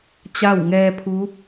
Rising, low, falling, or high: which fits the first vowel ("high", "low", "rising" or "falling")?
falling